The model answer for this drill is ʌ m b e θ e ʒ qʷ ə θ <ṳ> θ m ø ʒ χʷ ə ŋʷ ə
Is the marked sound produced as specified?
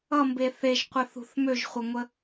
yes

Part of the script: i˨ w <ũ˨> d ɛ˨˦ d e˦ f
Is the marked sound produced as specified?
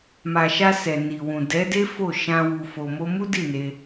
yes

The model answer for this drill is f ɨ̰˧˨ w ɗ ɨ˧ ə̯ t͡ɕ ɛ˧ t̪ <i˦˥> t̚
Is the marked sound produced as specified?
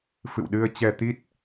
yes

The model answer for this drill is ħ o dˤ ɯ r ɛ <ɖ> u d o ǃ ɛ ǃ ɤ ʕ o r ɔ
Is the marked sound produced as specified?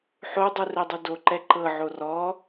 no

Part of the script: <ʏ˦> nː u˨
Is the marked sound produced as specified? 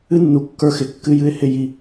no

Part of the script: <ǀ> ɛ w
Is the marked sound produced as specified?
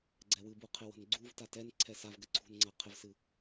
no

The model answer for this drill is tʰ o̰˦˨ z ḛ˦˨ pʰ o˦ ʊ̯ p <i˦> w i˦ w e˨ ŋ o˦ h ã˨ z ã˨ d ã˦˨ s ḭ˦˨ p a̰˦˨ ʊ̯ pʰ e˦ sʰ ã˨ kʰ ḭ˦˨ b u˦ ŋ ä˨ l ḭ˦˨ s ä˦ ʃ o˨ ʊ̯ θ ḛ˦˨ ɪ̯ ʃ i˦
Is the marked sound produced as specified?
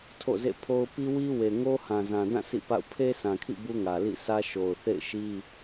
yes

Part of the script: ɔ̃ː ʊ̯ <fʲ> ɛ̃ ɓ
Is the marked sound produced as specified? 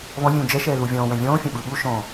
yes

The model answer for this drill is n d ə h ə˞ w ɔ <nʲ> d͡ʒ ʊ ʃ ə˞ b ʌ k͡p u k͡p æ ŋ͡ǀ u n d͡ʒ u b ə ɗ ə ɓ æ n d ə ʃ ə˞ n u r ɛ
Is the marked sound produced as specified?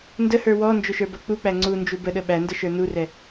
no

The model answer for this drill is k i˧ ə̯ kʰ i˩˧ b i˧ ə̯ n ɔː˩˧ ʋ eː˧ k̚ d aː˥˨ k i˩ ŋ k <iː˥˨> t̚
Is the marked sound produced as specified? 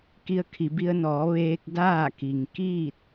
yes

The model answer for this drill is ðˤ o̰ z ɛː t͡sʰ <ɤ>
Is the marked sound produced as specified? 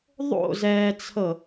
yes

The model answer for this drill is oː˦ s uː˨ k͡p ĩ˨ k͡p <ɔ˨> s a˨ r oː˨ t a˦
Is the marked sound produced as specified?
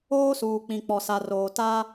yes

